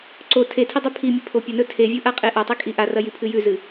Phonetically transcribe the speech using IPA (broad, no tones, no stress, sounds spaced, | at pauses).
ǀ o tʰ e tʰ i dˤ ʉ pʰ i mʲ e pʰ o pʲ ɐ n ɵ tʰ e vʲ u ʔ a qʼ e ʔ a tˤ i kʼ i ʔ a r ɐ j i pʰ ɨ j ʉ z ɨ